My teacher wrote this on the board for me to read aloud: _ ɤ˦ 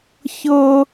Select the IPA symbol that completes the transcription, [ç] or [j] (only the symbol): ç